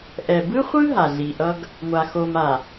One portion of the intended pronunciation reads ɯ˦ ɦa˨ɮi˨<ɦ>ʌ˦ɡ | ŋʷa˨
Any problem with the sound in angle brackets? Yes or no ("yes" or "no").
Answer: yes